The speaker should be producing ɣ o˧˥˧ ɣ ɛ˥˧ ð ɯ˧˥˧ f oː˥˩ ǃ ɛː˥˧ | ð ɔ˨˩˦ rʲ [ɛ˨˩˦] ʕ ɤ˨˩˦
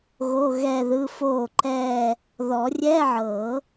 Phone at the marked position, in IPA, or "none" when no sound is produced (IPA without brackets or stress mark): ɛ˧˥˧